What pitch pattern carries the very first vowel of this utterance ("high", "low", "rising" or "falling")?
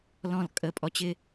falling